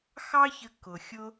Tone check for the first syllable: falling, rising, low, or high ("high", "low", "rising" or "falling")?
high